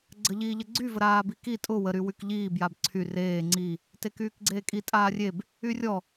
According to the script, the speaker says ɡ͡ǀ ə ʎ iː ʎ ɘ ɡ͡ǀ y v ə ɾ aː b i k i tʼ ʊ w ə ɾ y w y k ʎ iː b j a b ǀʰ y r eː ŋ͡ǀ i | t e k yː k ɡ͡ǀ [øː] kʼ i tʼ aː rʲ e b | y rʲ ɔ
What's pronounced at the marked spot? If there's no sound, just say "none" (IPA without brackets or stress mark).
eː